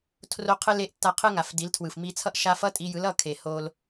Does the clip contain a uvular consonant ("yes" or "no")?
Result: yes